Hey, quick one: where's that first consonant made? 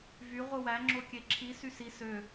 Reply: lips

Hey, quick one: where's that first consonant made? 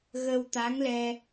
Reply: velum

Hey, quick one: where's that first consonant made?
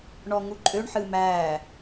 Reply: retroflex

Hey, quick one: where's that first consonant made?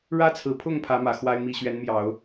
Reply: retroflex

